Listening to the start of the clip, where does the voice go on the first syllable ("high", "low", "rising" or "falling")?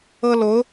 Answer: high